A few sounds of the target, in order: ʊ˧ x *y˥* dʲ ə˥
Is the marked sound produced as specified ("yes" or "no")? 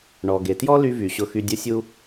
no